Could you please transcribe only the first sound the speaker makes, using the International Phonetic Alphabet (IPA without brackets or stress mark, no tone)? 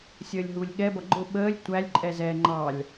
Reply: sʲ